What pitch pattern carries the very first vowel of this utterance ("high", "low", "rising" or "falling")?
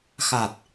low